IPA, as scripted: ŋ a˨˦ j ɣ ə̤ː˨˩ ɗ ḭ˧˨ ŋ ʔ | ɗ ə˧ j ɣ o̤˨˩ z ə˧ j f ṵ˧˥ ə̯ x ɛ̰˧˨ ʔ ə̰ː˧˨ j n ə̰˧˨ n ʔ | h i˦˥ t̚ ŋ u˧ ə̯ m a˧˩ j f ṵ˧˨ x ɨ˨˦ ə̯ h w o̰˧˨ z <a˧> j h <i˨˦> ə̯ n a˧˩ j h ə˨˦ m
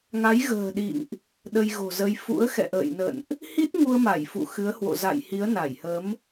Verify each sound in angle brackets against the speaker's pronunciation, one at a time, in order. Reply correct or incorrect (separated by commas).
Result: incorrect, correct